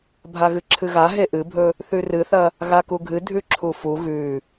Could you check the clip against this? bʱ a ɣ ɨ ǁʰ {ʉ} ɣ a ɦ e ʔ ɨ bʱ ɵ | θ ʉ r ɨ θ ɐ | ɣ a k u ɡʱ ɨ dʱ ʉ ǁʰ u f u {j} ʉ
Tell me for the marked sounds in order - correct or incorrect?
incorrect: ɨ, incorrect: ɣ

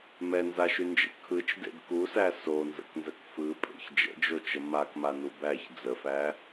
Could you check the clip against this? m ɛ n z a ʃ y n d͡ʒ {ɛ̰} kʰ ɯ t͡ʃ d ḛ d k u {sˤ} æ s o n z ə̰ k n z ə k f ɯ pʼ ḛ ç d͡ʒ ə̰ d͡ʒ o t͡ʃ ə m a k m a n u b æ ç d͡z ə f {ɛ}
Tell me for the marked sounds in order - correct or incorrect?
incorrect: ə̰, incorrect: s, incorrect: æ

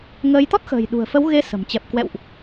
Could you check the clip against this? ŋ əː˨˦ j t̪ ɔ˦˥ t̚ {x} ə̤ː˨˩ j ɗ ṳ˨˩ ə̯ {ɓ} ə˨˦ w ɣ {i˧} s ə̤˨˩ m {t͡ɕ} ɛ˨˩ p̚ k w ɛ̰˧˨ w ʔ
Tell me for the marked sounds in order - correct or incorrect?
correct, incorrect: f, incorrect: e˧, correct

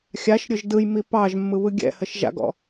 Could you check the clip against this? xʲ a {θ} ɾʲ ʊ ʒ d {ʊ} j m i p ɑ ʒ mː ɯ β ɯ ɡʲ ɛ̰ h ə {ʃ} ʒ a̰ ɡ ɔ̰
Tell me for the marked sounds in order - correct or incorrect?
incorrect: ʃ, incorrect: ɯ, correct

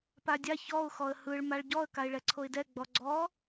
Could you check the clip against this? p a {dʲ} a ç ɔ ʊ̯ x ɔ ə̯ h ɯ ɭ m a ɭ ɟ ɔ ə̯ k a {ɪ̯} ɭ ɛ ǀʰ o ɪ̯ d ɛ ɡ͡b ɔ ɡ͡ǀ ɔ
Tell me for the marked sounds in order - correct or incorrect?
correct, correct

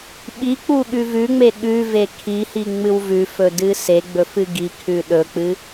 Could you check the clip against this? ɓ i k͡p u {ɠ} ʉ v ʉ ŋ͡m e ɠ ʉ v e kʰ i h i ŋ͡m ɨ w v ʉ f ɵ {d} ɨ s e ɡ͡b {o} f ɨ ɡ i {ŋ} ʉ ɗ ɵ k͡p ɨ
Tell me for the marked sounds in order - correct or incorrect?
correct, correct, incorrect: ɵ, incorrect: kʰ

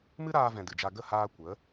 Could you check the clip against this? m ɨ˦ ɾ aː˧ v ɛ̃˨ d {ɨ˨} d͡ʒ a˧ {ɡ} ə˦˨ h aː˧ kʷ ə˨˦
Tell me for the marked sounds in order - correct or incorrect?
correct, correct

